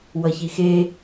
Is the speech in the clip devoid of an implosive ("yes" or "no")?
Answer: yes